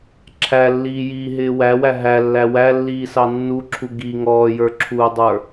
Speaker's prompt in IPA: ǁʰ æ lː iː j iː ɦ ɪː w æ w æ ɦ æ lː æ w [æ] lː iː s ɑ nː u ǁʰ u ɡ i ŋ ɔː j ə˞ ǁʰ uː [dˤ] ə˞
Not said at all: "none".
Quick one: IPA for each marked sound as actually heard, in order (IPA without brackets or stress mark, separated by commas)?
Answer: æ, dˤ